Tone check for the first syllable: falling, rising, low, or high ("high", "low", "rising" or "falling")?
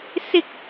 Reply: high